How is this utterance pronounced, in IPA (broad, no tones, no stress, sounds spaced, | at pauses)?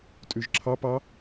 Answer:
tʼ ʉ ʒ ǁʰ ɑ p ɑ